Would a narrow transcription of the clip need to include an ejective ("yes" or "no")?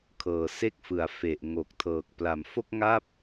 no